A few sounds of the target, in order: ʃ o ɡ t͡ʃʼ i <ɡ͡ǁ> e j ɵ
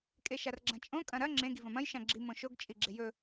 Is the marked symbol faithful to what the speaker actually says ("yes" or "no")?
yes